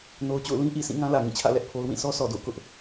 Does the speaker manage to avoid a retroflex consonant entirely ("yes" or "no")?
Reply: yes